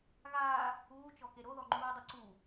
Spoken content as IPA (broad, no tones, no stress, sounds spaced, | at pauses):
ɣ aː | uː t͡ʃ ɔ k e ɾ o ð ɔ ŋ͡ǃ uː dˤ u ǀ u